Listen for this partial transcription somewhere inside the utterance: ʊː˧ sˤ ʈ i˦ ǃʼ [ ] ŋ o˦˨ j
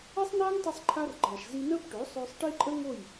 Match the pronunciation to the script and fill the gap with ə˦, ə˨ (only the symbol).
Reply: ə˦